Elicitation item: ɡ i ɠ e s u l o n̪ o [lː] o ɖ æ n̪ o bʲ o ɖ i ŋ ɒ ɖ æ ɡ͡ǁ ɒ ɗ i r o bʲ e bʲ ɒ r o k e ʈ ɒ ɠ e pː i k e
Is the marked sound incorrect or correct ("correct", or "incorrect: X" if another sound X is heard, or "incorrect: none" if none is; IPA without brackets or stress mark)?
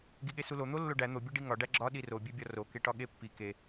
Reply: correct